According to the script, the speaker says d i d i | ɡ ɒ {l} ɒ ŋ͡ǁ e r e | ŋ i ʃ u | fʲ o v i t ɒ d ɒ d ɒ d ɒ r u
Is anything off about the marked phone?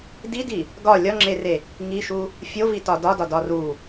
yes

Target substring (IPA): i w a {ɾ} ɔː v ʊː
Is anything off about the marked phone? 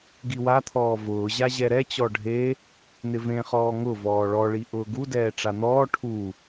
yes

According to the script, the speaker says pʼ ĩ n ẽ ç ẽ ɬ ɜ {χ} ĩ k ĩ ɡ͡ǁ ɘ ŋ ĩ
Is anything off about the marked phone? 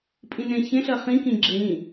no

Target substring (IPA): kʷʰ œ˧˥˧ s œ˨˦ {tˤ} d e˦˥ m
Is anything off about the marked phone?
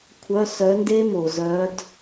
yes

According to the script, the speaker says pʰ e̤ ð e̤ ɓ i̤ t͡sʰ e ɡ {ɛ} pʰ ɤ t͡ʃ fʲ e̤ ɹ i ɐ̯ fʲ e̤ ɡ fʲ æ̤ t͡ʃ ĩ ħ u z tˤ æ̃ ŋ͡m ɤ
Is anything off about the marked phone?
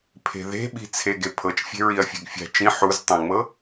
yes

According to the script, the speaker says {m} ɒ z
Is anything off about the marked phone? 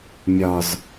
yes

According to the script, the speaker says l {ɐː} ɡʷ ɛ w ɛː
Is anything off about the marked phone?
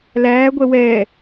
yes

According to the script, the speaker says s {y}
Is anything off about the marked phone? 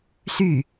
no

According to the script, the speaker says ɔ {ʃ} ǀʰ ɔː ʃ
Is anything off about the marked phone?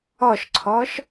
no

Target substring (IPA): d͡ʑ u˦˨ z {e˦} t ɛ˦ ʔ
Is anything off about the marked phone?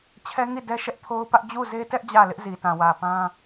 no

